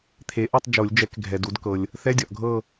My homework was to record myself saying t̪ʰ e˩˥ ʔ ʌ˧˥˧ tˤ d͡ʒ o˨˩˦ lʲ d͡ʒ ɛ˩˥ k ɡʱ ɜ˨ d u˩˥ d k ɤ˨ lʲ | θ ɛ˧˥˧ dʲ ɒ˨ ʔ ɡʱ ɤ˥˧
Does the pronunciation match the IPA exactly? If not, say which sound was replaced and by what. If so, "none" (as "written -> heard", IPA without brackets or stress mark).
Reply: ɜ˨ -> ɛ˨